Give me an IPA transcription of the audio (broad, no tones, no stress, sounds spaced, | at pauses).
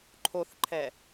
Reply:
ǃʰ o θ ǃʰ ɛ